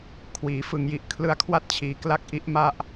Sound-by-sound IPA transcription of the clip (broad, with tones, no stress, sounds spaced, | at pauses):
kʰ w iː˩˦ f ɯ˩˦ ŋ j i˨˩ ʔ kʰ l ɯ˧ a̯ kʰ w a˥˩ t̚ t͡ɕʰ iː˨˩ k l a˦˥ k̚ ʔ i˦˥ ʔ m a˥˩ ʔ